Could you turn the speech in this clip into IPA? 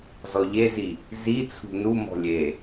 z ɔ ʎ e z i | z i t͡sʰ ṳ n u m ɔ̤ lʲ e

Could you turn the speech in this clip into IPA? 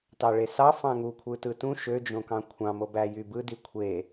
t ɑ ɭ e s ɑ f ɑ̃ ŋ u kʷʰ ɯ t ɯ t ũ ʃ ø d͡ʒ õ k ɑ̃ kʷʰ ɑ̃ m o b æ j y b ɯ d i kʷʰ e

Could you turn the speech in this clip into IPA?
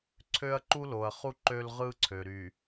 ǀʰ ø˦ ɐ̯ ǃ u˦ l o˨ ɐ̯ χ u˦ ǃ ø˦ l ʁ ɯ˦ ǀʰ ø˨ ɾ y˨

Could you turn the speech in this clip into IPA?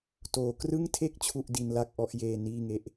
t oː˩˦ k r ɯ˥˩ ŋ tʰ e˥˩ k̚ t͡ɕʰ u˥˩ ʔ d i˧ n l a˥˩ k̚ ʔ ɔ˦˥ ʔ j eː˧ n iː˥˩ ŋ e˥˩ ʔ

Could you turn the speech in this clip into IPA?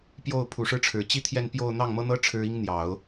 p j o˥˩ ʊ̯ pʰ u˨˩ ʂ ɻ̩˥ ʈ͡ʂʰ ɻ̩˨˩ t͡ɕ i˥˧ t̪ʰ j ɛ˥˧ n p j o˥˧ ʊ̯ n̪ ɑ˥˩ ŋ m ɤ˥ n̪ ɤ˥ ʈ͡ʂʰ ɻ̩˥ i˥ ŋ n̪ j ɑ˨˩˦ ʊ̯

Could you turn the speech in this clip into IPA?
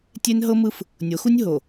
tʲ e˦ n ɦ ɤ˦ m ɯ˦ f | nʲ o˨˦ x u˦ nʲ ɦ o˨

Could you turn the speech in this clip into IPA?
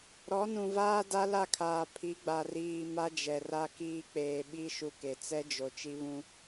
ɾ ɔ˨˦ n ũ˨ v aː˦ d a˦ l a˦˨ kʰ aː˨ pʰ i˨˦ ɡ͡b a˨ r iː˨ m a˦ d͡ʒ ɛ˨ r a˦ k iː˦ k͡p eː˨ ɓ i˦ ʃ u˦ k e˨ t͡s ɛ˦ d͡ʒ o˨ t͡ʃ i˦ β ũ˦

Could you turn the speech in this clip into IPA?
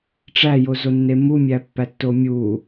ʈ͡ʂ æ j o z o nː e m u mʲ æ pː æ tː o mʲ u

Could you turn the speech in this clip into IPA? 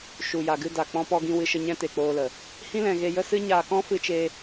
ʃ u˨ j a˨ ɡ ɨ˧ d a˨ k͡p ɔ̃˧ p ɔ˧ ɡ ĩ˧ w ɨ˧ ʃ ə˧ ɲ ɛ̃˦ t e˨ k͡p oː˧ l ə˨ | h ĩ˦ l ɛ̃˧ ɣ e˧ j ə˦ s ɨ˦ ɲ aː˧ k ɔ̃˦ f ɨ˦ t͡ʃ e˦

